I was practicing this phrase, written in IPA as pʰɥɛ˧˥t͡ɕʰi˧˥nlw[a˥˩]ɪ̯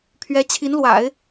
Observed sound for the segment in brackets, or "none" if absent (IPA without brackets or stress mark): a̰˨˩˦